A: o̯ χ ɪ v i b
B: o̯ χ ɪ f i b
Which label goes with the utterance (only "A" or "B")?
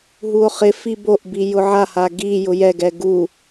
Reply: B